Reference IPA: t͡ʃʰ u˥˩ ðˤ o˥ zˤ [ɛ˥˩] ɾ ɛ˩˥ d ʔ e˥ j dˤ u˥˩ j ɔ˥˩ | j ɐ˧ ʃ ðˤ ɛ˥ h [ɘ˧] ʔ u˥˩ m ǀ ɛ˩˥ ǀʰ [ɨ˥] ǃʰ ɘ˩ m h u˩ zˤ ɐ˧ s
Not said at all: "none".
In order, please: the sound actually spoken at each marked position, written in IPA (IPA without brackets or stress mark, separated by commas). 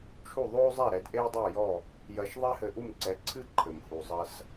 ɛ˥˩, ɘ˧, ɨ˥